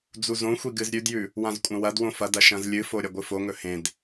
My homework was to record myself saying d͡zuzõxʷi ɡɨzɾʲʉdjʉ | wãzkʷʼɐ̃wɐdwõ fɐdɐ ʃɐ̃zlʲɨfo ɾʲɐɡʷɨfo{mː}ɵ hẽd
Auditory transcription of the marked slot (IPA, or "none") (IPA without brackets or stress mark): ŋ